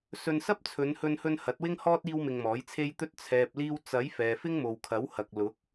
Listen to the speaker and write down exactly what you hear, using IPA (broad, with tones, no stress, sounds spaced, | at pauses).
s ɵ˧ n s ɐ˥ p̚ t͡sʰ ɵ˨˧ n h ɵ˧ n h ɵ˧ n h ɐ˨˥ t̚ w ɪ˥ ŋ h ɔː˥ t̚ iː˥ w m ɪ˧ ŋ m ɔː˨˥ j t͡sʰ e˥ j t̪ ɵ˧ t̚ t͡sʰ ɛː˨ p̚ l iː˧ w t͡s ɐ˨˥ j f ɛː˨ f ɪ˥ ŋ m o˨ w kʰ ɐ˨˥ w h ɐ˨ k̚ l ʊ˨˥ k̚